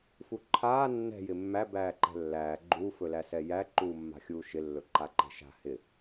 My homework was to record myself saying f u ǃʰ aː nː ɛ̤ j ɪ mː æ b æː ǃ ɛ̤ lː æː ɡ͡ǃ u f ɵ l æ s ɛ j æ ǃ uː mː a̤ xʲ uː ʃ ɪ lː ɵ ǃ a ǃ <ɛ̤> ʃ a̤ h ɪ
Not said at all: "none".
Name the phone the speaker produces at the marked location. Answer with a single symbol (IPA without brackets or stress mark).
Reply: ɛ̤